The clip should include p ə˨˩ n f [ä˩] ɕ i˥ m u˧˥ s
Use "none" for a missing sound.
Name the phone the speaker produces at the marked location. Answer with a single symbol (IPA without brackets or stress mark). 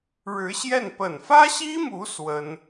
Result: ä˥